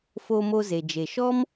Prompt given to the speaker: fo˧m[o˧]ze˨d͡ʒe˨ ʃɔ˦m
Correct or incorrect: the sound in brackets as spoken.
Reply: correct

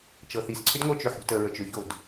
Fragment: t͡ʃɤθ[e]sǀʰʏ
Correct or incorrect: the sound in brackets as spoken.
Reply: incorrect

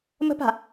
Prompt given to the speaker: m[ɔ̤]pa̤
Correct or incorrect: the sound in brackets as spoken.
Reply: incorrect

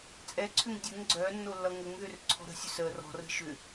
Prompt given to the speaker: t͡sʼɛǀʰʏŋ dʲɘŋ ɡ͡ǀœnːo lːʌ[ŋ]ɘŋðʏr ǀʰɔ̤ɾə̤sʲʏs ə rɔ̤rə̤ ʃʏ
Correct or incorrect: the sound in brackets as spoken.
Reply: correct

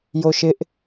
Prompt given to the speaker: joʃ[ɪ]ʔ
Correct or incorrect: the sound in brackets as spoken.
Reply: correct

